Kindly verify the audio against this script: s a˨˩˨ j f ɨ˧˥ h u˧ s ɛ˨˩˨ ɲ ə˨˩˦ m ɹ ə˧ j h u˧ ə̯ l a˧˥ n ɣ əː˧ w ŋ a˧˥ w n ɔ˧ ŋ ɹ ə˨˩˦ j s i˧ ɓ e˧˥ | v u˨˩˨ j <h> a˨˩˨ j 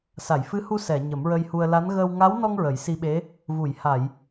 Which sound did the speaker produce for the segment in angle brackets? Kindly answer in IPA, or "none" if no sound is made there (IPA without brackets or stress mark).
h